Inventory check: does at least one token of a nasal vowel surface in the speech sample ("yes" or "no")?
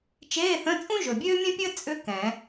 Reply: yes